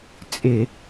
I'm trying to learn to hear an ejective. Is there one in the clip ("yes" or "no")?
yes